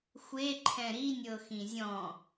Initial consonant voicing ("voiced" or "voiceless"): voiceless